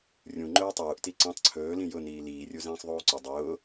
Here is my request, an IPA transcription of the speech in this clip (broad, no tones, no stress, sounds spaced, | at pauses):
rʲ ũ ŋ͡ǃ ɵː tˤ uː ʔ t i ǀ ĩ tˤ ǀʰ ɵː l ĩ j ʊ n iː l iː rʲ u z ĩː sˤ ðˤ uː ǀ ʊ dˤ ʊː